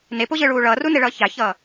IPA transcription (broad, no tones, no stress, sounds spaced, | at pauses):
n e p o ʑ ɯ ɭ uː ɭ ʌː r u n e ɭ ʌː ç a ç ʌː